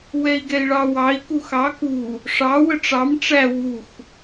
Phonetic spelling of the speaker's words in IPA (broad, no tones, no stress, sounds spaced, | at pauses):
w ɛ i̯ ɡ ɛ i̯ ɭ ɑ w ɑ i̯ k u x ɑ k u | ʂ ɑ w ə ʈ͡ʂ ɑ m ʈ͡ʂ æ w u x